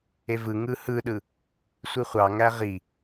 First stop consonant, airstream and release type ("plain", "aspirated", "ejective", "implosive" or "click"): implosive